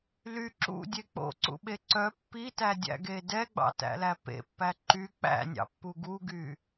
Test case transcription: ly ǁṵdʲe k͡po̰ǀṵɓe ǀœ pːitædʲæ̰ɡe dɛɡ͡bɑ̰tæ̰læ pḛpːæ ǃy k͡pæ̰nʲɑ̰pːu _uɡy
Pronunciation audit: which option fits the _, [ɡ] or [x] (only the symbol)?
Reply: ɡ